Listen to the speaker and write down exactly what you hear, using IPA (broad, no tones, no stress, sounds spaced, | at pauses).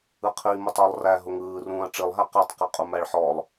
ɯ qʰ i m ɯ tˤ ɔ lˠ r æ ɦ ʊ ŋ ɯː r ũː ɐ̯ ʈ͡ʂ i lˠ ɦ æ q æ tˤ q i qʼ u m æ ɭ ħ ɔ lˠ